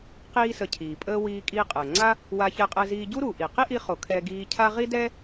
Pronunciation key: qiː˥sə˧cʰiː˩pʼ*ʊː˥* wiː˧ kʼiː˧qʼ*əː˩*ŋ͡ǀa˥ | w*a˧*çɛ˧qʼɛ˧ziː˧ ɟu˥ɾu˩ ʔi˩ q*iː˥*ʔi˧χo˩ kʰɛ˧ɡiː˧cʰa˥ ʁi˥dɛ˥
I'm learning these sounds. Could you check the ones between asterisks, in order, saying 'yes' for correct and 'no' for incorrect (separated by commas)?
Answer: no, yes, yes, no